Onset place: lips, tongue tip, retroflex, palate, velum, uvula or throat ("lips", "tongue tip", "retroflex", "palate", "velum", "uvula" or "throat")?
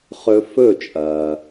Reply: uvula